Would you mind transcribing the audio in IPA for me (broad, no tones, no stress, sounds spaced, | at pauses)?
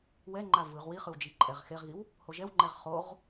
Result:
w ɛ ŋ͡ǃ a v ɯ ʁ w i χ ɯ w d͡ʒ i ǃʼ ɛ ʁ x e ʁ ɣ i w | h o ʒ ɛ w ŋ͡ǃ ɛ ʁ χ o ʁ